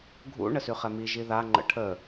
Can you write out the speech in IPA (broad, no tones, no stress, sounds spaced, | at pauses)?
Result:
ɡʱ ṵ ɳ ə s y χ ɛ m i ʒ i ð a ŋ͡ǃ ə̰ ʈʰ ə